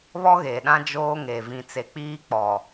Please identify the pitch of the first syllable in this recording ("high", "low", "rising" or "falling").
high